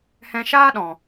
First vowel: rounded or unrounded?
unrounded